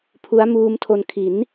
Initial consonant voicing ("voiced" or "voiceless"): voiceless